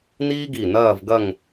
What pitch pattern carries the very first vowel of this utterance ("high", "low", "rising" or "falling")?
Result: high